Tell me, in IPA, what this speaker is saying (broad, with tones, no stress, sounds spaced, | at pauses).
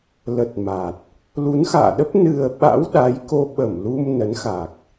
l ə˨˩ t̚ m a˨˩ t̚ | l u˨˦ n x a̰ː˧˨ ɗ ə˦˥ p̚ n ɨ˨˩ ə̯ ɓ a̰˧˥ w ɗ a˨˦ j k o˧ ɓ ə˧˩ m l u˧ m n ə˨˦ n x a˨˩ k̚